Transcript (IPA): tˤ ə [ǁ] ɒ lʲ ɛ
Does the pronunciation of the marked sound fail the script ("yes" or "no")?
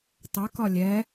yes